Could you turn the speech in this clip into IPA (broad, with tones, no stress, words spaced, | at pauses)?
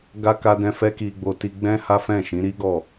ɡa˦ ka˧dɛ̃˧ fɛ˦ki˧ɡ͡bo˧ ti˧ɡ͡bɛ̃˦ ha˦fɛ̃˦˨ʃĩ˨˦ ɾi˦ɡɔ˦˨